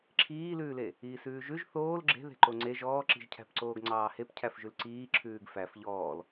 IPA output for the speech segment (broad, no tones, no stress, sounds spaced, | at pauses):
ǁʰ iː l ʉː l e | iː s ʉː ʒ ʉ ʒ θ oː l ɡ͡ǁ e̤ ð e̤ ǃ o ŋ͡ǀ e ʒ ɔː ǁ i̤ ʒ cʰ æ̤ p ǀ oː ɡ ŋ͡ǀ ɑː h e p cʰ æ f ʒ ʉ l ǀ iː ǁʰ ʉː ɡ f æ f ʎ ɔː l